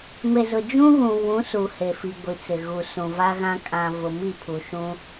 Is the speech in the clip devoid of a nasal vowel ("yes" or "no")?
no